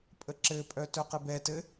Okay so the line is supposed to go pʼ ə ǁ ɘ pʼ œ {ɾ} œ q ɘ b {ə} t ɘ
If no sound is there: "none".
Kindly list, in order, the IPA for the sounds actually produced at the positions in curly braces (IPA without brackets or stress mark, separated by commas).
t, ɛ